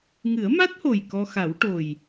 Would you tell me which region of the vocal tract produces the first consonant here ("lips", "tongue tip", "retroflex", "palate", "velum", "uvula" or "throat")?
velum